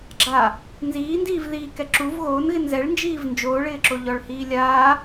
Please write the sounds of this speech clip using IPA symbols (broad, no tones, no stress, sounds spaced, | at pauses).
ɡ͡ǁ a | n z iː n d iː v ð iː k ɛ ǁ u v ɣ oː n ɣ ɪ n z ɛ ɭ n d͡ʒ iː v n d͡ʒ oː ɭ ɪː ǁ o ʎ ɔ ɭ h iː lʲ aː